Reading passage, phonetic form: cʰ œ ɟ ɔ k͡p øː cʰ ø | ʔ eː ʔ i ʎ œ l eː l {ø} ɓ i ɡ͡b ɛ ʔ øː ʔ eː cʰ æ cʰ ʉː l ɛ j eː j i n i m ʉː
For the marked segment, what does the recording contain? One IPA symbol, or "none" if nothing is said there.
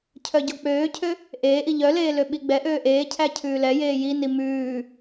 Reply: ø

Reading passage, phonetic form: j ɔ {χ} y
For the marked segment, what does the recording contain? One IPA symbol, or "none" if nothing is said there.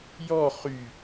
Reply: χ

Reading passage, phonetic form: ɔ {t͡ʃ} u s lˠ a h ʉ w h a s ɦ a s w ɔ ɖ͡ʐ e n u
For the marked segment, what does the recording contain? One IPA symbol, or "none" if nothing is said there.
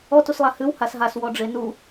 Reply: t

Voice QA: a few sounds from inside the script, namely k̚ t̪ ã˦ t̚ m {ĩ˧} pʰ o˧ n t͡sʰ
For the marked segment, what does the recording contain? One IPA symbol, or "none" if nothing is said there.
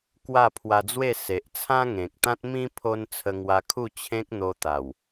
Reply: ĩ˦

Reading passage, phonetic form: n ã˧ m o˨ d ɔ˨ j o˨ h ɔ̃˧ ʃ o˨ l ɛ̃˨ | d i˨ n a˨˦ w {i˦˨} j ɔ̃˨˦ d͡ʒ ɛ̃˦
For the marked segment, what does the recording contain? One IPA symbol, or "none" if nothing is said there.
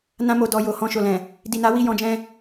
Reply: i˦˨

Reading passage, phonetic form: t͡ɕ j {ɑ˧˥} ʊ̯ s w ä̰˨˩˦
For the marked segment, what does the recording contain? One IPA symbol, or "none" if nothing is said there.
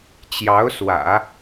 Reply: ɑ˧˥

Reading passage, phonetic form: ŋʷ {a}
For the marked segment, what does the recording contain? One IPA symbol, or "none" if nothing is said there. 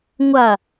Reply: a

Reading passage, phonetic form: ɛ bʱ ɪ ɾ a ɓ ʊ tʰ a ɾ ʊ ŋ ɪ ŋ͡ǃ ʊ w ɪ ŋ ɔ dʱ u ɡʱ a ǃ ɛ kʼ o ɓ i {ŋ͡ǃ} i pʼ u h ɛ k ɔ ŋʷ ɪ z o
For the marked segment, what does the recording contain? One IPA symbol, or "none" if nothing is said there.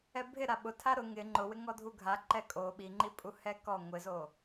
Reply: ŋ͡ǃ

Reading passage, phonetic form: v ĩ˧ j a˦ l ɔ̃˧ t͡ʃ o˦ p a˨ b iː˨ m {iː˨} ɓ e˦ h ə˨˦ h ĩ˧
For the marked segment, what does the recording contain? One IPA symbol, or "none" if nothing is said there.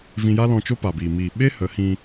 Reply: iː˨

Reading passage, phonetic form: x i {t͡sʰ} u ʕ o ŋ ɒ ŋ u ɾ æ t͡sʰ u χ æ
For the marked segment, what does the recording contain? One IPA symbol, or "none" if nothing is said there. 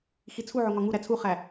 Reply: t͡sʰ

